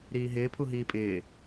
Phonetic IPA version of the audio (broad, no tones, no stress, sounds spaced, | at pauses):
ɾ iː ɦ ɪː pʰ u ɦ iː pʼ ɪː